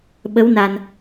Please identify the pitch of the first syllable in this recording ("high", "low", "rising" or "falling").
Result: rising